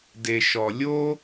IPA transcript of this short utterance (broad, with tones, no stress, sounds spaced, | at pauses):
d e˨ ʃ ɔ˨ lʲ o˦